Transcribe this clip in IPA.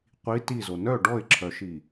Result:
qʷ i t i z o n œ ɖ ɔ ɪ̯ ǁʰ œ ʃ i

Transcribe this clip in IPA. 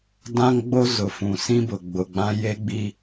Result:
d ã˦ ŋ ɡ͡b o˦ z ʊ˨ f ũ˨ s ĩ˦ b ʊ˨ ɡ͡b ʊ˨ ɡ͡b ã˦ j e˦ ɡ͡b i˦

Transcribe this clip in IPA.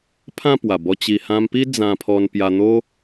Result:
pʰ ã˥˧ p w a˨˩ b ɔ˧ t͡ɕ i˧ h ã˧ m p i˦ d͡z ã˧ pʰ ɔ˧ n p j a˧ n̪ o˦

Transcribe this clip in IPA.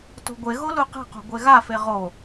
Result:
t o̤ ɡʷ e ɣ o l u q e̤ q o̤ ɡʷ e ɣ a f e ʁ o

